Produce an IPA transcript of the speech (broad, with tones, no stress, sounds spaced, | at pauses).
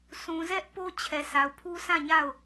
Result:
sʰ ũ˨ z ɛ˦ ʔ p o˦ t͡ɕʰ ɛ˨ s a˨ ʊ̯ pʰ u˦ s ã˦˨ ɲ a˦˨ ʊ̯